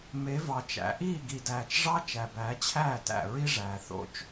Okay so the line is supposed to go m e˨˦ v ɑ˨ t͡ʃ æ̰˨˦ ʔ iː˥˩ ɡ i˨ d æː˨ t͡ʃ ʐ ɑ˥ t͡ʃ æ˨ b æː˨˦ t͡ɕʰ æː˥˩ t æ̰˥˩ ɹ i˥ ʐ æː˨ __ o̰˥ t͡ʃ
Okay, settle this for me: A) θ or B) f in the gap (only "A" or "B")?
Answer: A